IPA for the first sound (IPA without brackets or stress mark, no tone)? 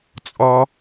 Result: t͡sʼ